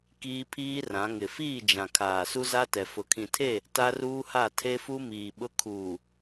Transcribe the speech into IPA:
kiː˦pʰiː˦rã˨˦ ŋɪ˨fiː˦˨d͡ʒã˨kʰaː˨ su˦za˦tɛ˨ fʊ˨kʰĩ˨tʰe˦˨ | ta˦ruː˦ha˦˨ tʰe˦fu˦miː˨ ɓʊ˦ kʰuː˨

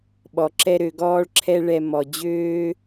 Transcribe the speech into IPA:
ɓɔ˨ǁɛ˦ ɾø˧ɡɔː˦ɭǁʰɛ˦ ɭɛ˧mɔ˨ d͡ʑøː˦

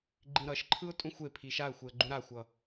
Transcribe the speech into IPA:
ɡ͡ǃĩɾʌʃǃʰɯʊ̯ tʼũxʷepʰi ʃaə̯xʷeə̯ ɡ͡ǃũɾaxʷʌ

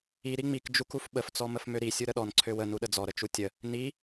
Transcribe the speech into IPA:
i ɾiŋ͡mik d͡ʒukufɓəf t͡sɔməfmøɾi sʲuɾəɗɔn ǀʰøwə nuɗəd͡zɔ ɾət͡ʃutʲə | ni

